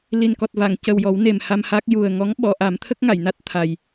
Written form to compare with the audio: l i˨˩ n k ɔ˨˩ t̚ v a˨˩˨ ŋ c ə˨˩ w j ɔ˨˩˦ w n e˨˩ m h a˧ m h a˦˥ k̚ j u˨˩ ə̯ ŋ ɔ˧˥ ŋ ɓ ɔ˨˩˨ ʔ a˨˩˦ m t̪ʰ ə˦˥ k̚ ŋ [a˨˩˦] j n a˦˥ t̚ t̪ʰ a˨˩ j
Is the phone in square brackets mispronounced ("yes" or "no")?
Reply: yes